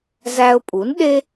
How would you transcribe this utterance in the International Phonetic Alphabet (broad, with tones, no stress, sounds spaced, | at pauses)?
z æ˧ ʊ̯ pʼ u˩˥ n ɗ e˥